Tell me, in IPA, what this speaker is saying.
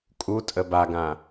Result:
kʼutʼə baɡã

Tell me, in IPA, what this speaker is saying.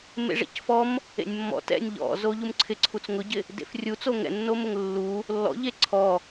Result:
mḛʐɛ̰cfɔm | ḛnʲmːɔ̰ tɛ̰nʲ ʎɔ̰ zoʎumǀʰɪ ǀʰut͡sŋʊɟɪ | dḛfrʲut͡so ŋɛ̰nːomʊŋ lːu | lːɔ̰ʎe ǀʰɔ

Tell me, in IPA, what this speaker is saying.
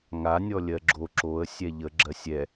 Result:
ŋa nʲɔlʲɜɡ͡ǁo ǁoə̯ sʲɛʎə ɡ͡ǁɜsʲɛ

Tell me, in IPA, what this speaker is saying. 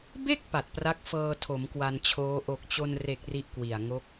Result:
be˥˩k̚ pa˨˩t̚pra˦˥k̚fɤː˧ tʰo˩˦mkwa˧nt͡ɕʰoː˦˥ ʔo˨˩k̚t͡ɕo˧nre˨˩k̚ ri˦˥ʔkwi˨˩a̯ ŋo˦˥k̚

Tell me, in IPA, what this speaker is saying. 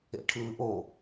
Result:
ḛʈʰɯːʔo

